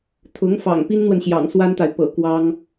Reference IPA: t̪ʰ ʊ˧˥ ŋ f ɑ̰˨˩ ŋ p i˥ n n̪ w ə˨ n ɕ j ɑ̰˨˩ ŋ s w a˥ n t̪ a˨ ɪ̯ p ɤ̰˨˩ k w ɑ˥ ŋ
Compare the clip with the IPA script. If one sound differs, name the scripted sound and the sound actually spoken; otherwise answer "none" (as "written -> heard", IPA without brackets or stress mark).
none